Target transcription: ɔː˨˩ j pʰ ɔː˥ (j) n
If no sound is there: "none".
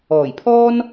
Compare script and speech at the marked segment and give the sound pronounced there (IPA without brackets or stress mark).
none